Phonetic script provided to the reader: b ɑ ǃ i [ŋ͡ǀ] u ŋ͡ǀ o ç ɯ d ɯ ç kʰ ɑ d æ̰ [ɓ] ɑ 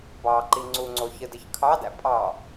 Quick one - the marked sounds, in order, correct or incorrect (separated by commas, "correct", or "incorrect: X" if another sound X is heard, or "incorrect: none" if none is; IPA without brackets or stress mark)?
correct, incorrect: pʼ